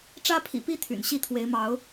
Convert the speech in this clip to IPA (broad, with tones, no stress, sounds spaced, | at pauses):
ʈ͡ʂ ä˦ pʰ ḭ˨˩ p i˦ t̪ʰ y̰˨˩ n ɕ i˥˨ t̪ʰ w e˨˦ ɪ̯ m ɑ˨˦ ʊ̯